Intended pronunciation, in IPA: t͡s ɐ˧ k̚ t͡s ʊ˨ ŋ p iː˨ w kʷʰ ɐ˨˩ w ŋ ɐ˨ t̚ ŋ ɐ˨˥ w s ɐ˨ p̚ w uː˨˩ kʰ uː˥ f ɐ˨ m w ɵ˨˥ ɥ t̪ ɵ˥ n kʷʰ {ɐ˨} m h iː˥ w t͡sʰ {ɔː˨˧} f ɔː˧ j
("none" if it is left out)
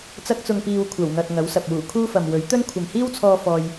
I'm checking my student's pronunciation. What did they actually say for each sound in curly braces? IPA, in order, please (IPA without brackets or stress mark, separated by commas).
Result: ɐ˨, ɔː˧